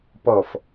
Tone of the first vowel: low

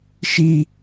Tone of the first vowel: high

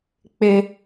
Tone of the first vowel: high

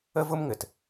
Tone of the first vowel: high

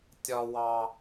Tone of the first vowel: low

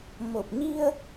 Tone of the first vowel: low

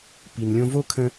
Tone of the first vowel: low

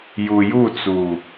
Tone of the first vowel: low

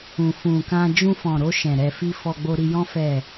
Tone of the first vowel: low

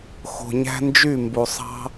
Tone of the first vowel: low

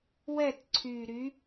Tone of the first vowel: falling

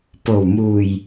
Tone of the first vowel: low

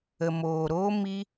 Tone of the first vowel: low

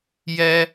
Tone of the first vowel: high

